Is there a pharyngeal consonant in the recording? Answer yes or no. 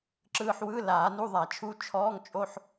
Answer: yes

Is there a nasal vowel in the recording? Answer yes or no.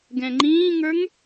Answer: yes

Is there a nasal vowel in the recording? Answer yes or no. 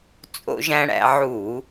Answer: yes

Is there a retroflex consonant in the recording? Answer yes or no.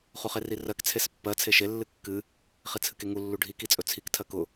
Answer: yes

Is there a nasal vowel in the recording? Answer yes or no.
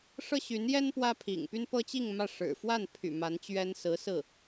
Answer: no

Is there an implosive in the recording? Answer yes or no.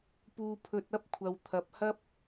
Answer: no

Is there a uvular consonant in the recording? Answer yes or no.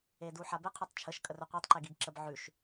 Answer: yes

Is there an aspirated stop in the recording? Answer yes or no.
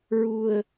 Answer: no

